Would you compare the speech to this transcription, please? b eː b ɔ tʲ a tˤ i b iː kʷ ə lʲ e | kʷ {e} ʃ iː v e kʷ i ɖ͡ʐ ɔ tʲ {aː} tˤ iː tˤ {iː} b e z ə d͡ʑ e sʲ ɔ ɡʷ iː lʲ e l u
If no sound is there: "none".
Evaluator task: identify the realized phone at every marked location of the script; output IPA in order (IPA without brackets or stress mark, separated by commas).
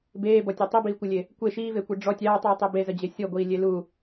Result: e, aː, i